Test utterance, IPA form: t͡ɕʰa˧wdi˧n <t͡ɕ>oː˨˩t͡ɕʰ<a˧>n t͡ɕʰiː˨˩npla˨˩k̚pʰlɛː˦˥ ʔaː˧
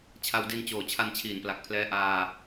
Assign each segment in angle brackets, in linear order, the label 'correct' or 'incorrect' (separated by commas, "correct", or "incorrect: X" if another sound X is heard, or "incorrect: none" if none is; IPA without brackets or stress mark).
correct, correct